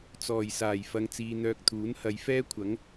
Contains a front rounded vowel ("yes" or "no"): yes